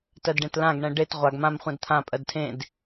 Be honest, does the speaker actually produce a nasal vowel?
yes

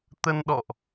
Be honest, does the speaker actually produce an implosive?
yes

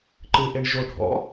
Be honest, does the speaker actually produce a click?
yes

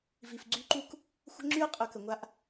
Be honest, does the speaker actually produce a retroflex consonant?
no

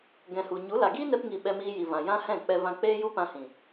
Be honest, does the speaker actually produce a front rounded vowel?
no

